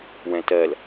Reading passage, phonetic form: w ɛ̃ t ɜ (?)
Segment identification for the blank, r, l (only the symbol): l